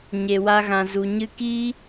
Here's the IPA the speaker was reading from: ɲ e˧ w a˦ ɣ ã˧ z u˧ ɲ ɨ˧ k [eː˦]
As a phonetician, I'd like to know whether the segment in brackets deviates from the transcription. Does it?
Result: yes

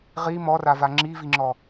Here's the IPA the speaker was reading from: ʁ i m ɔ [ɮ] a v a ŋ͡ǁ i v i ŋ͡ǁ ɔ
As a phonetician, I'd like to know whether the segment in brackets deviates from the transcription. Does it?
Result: yes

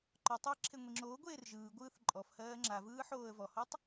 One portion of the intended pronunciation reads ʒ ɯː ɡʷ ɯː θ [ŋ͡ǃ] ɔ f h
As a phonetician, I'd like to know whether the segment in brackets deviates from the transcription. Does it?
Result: yes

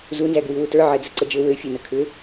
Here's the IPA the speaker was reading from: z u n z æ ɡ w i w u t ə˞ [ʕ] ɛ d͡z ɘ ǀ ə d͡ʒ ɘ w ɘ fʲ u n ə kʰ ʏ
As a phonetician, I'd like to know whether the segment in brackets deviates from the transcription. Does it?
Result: no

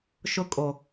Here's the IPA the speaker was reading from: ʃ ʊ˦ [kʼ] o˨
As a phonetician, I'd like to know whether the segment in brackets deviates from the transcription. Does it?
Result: no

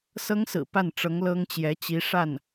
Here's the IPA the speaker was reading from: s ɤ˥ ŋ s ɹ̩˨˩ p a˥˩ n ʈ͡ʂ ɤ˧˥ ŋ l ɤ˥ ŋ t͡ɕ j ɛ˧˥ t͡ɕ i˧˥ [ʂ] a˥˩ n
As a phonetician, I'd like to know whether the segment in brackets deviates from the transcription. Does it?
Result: no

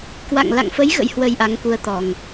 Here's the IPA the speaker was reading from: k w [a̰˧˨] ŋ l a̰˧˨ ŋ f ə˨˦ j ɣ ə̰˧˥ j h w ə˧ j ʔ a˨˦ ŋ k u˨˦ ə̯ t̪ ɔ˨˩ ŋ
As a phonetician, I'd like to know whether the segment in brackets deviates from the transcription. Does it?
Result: no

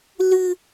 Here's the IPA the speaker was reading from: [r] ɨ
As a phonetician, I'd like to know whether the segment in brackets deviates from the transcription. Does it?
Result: yes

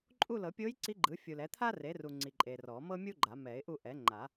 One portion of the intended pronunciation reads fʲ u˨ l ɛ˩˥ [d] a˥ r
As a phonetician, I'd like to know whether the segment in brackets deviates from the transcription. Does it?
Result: yes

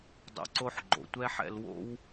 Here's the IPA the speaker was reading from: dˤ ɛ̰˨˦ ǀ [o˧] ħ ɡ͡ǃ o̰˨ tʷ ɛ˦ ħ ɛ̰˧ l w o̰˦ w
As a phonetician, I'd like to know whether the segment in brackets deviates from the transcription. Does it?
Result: no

